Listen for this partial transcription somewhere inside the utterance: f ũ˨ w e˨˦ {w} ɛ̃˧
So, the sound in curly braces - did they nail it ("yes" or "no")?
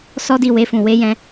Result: no